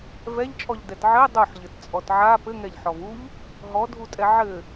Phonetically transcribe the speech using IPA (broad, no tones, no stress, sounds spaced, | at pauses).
v ɛ ʎ t͡ʃʼ ɔ ʎ d ɛ t ʕ ɘ dˤ u ħ ʎ ɘ t t͡sʼ ɔ t ʕ a p ɘ ŋ ɛ ʎ ħ ɔ v u ʎ | ɦ ɔ dʱ u tʼ ɛ ʕ ɘ